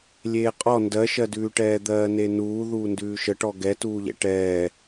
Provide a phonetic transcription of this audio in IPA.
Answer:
lʲeːqʼɔ ndɜʃɜdʉːʈɛː d̪ɜːnenuː ðuːndʉːʃəʈɔ ɡɛtuːʎɛ̰ ʈɛː

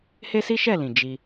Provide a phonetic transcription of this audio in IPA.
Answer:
he˦si˦ʃɛ˦˨lĩ˨ d͡ʒi˧

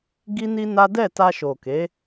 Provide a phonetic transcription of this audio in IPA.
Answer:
ɡi˦ni˦na˦ dɛ˦˨ ta˧ʃo˨ke˨˦

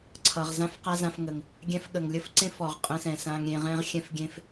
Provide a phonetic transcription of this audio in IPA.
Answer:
ǀʰʌ˩ʁ zã˥f qa˥zã˧fŋə˩ŋ | ɡʲɛ̃˧fɠə˩ŋlʲə˥fǀẽ˥f ɔ˩ʁqʼə̃˧sɛ̃˩ sã˧ŋ ɾʲẽ˧ ʁɛ̃˥ʁxʲɛ̃˥fɡʲẽ˥f

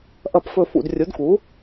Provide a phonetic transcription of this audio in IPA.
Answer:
ʔɐ˧˩pfɵ˧˩ fṵ˧˩drʲu˩˥dku˩˥

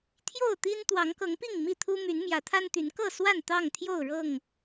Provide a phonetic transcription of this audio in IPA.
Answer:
t̪ʰjo˥˨ʊ̯t̪i˦n t̪wɑ˨˦ŋkɤ˨˦ŋpi˥˨ŋ mi˥˨t̪ʰu˦ my˨˦n mjä˨˦t̪ʰa˦nt̪y˨˦n kɤ˥˨swa˥˨n t̪ɑ˥˨ŋt̪ʰjo˥˨ʊ̯ɻɤ˥˨ŋ

